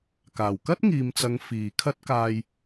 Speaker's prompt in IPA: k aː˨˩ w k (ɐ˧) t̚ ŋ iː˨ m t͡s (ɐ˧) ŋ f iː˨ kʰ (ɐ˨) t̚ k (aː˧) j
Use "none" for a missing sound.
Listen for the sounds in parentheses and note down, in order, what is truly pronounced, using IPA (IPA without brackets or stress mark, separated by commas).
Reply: ɐ˥, ɐ˨˧, ɐ˥, aː˧